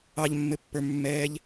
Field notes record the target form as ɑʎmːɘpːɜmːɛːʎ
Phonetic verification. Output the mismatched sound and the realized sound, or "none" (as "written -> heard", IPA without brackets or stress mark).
ɜ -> ə˞